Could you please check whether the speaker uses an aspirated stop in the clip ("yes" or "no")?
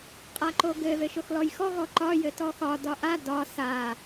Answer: no